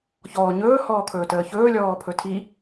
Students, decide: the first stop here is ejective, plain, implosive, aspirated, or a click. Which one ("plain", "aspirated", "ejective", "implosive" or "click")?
aspirated